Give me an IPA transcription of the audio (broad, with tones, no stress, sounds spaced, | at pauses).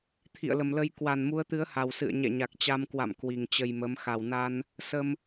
t̪ʰ ḭ˧˨ ə̯ l ə˨˩ m l ə˧ j k w a˨˩ n m u˨˦ ə̯ t̪ ɨ˨˦ ə̯ h a˨˩ w s ɨ̰˧˨ ə̯ ɲ ɛ̰˧˨ ɲ a˨˩ k̚ t͡ɕ a˧ m k w a̰˧˨ m k w i˨˩ ŋ t͡ɕ ə˧ j m ə˨˦ m x a˨˩ w n a˧ n | s ə˧ m